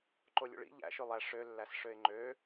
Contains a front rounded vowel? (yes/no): yes